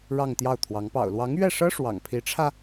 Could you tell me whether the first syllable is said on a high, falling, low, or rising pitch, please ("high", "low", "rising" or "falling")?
falling